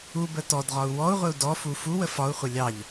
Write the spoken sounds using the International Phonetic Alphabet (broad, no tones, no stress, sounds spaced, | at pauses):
u b ə t ɔ d ʁ ɒ u̯ w ɔ u̯ ʁʷ ɪ u̯ d ɔ f u f u w ə f ɒ u̯ χʷ ɪ lʲ ɑ ʎ